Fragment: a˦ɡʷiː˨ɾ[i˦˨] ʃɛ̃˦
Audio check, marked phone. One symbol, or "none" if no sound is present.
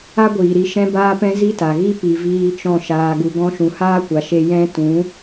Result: i˧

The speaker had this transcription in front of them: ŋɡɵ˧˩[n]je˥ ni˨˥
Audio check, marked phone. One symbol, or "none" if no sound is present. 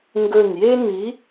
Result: n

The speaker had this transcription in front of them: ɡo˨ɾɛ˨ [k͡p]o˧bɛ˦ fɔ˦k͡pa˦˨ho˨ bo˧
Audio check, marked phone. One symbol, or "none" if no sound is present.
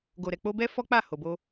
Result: k͡p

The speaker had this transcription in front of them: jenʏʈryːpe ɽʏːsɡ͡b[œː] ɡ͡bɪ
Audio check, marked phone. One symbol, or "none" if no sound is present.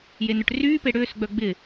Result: œ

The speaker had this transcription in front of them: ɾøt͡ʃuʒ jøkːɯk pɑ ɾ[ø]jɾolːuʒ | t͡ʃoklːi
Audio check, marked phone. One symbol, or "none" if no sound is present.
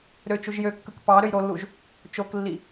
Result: ø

